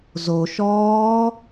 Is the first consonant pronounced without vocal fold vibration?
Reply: no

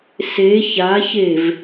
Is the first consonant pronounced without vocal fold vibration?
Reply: yes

